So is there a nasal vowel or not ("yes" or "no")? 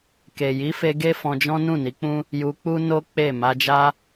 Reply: yes